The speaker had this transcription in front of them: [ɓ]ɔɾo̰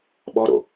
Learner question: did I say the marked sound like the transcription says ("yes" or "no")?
yes